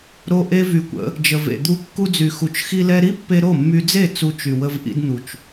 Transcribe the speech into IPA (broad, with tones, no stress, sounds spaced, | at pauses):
ɾ o˦ ʔ e˦ v y˧ kʷ ə̰˨˦ | d͡ʒ ə˨ v ḛ˨ d̪ u˧ kː u˧ d͡z y˨ x u˨ t͡ʃ x i˧ l ɛ˧ ɾ i˦ pː e˧ ɾ o˦˨ mː y˧ d͡z e˦˨ t͡s u˧ t͡ʃ y˨ w ə˧ v ʔ ḭ˧ d n̪ u˨ t͡ʃ